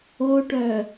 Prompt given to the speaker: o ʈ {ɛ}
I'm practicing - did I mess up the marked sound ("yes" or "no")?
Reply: yes